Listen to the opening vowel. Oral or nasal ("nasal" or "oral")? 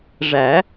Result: oral